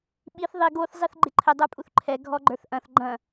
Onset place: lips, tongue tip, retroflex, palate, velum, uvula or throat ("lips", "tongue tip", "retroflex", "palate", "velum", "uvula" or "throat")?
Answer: lips